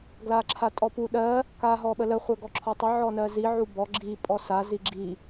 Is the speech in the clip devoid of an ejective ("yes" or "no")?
no